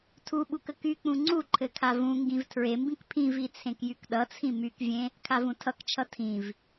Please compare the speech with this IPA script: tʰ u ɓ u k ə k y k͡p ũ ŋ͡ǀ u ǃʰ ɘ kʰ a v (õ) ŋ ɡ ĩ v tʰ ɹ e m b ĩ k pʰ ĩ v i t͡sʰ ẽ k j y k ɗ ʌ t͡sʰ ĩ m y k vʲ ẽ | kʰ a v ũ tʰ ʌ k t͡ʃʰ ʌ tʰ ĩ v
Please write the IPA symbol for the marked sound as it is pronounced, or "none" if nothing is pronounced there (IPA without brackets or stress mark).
ũ